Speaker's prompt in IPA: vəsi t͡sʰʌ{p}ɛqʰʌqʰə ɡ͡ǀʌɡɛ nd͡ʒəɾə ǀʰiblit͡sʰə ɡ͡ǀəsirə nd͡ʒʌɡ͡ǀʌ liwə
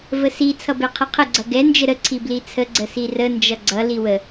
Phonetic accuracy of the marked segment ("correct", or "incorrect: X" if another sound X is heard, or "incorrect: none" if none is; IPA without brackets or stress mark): incorrect: b